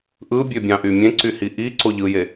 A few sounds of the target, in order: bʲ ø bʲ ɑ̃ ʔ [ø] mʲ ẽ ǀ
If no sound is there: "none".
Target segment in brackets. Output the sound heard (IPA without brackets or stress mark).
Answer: y